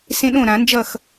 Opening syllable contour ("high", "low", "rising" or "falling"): high